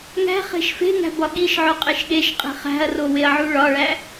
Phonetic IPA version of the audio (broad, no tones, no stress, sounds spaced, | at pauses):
ŋ æ̤ χ e̤ ʃ f e̤ ŋ æ̤ b ɒ ɠ i ʃ ʕ o qʼ e ʃ ɠ e ʃ qʼ e̤ χ æ̤ ɐ̯ r o w e ɐ̯ ʕ u ɭ ɒ ɭ æ